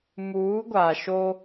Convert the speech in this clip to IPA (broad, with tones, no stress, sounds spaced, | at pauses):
m uː˨˦ ɡʷ a˨ ʃ o˦